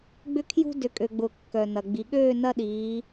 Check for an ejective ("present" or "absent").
present